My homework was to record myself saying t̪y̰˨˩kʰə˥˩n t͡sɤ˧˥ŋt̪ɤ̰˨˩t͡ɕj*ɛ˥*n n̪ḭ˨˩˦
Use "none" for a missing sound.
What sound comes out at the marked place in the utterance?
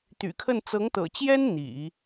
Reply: ɛ˥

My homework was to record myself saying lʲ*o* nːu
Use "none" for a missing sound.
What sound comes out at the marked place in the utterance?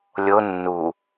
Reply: o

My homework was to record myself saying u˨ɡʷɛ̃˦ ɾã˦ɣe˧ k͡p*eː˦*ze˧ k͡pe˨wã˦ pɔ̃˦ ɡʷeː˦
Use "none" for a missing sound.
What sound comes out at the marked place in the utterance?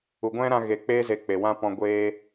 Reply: eː˦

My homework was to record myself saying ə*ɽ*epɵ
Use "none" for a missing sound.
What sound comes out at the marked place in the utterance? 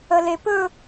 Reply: l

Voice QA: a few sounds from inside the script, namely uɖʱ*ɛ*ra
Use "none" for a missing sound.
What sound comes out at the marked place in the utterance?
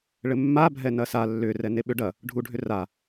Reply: ʏ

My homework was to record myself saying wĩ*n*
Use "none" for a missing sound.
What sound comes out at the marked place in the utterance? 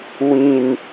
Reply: n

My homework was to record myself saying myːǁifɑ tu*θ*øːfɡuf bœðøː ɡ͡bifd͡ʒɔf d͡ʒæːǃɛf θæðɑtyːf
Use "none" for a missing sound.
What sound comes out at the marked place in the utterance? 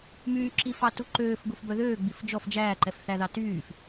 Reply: ǃ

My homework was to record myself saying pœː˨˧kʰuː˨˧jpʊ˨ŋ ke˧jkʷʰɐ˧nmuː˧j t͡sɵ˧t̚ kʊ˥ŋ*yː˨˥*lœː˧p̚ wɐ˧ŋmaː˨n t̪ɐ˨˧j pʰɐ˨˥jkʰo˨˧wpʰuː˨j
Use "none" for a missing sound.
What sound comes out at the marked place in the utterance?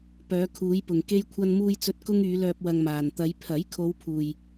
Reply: yː˨˧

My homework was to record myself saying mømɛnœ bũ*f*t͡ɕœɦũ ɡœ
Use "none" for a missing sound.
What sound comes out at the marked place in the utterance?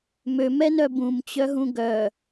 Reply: m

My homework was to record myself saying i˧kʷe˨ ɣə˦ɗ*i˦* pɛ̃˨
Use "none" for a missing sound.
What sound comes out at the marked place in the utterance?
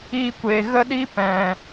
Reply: i˦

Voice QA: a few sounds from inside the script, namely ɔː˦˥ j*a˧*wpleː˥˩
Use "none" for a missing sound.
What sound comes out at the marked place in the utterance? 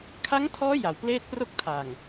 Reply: a˩˦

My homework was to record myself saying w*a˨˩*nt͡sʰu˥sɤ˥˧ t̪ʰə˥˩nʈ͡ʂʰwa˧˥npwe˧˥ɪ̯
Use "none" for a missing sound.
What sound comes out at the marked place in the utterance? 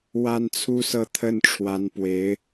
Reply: a˥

